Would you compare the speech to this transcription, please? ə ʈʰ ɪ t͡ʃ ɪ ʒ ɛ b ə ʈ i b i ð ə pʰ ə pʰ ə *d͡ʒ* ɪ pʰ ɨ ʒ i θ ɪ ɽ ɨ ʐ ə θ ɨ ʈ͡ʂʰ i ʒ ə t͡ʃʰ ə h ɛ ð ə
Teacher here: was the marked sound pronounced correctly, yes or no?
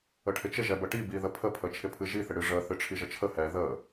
no